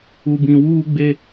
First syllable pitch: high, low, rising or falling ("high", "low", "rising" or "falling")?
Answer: low